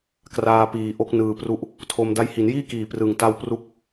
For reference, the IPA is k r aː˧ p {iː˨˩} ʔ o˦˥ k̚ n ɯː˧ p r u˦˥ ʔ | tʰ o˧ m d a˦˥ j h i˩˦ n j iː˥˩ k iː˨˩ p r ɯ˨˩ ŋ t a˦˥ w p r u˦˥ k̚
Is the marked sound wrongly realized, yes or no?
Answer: no